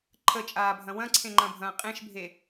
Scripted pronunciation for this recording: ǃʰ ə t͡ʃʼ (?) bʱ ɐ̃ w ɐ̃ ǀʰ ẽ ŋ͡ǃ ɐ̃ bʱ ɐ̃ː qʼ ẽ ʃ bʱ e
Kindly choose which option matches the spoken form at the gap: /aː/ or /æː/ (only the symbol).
aː